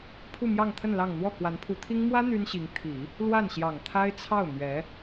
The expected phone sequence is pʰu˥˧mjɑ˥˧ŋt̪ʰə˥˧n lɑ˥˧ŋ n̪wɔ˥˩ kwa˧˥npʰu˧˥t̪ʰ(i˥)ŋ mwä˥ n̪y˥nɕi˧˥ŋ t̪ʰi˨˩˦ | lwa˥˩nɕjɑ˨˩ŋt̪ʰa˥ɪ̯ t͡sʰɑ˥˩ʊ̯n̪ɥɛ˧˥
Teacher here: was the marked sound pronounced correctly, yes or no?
yes